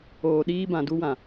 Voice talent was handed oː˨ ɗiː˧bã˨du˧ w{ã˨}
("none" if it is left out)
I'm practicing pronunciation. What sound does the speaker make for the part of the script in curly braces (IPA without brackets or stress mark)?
ã˨